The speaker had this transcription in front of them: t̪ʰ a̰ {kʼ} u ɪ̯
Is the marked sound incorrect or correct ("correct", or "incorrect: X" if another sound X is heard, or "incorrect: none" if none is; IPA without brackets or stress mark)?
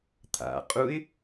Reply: incorrect: qʼ